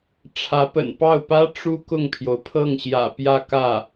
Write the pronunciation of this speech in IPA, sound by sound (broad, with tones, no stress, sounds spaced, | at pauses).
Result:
ʈ͡ʂʰ ä˧˥ p ə̰˨˩ n p ɑ˥˩ ʊ̯ p ä˥ ʈ͡ʂ u˥ k ʊ˥˩ ŋ pʰ j o˩ ʊ̯ pʰ ɤ˥˩ ŋ ɕ j ä̰˨˩ p j ä˥˧ k ä˥˩